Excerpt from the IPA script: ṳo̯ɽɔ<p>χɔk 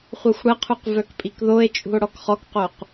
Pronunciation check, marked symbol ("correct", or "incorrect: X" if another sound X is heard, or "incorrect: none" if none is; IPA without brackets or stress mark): incorrect: k